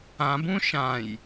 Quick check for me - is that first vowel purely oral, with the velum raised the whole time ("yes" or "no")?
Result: no